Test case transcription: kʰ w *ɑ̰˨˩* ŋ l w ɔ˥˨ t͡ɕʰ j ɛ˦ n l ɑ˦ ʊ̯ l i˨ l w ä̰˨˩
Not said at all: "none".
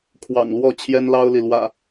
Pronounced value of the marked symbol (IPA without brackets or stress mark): ɑ̰˨˩